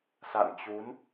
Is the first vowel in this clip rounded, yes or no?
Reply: no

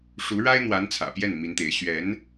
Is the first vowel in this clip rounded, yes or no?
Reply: yes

